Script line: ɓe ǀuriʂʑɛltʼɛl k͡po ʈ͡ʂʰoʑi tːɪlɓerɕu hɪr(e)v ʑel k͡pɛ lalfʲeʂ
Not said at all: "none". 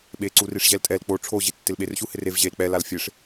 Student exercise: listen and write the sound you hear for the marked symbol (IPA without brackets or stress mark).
e